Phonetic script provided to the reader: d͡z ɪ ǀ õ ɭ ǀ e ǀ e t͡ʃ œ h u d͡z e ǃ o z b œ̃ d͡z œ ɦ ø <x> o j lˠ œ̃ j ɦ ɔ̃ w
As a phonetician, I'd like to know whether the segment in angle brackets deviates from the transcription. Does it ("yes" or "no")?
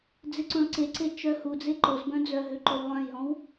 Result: yes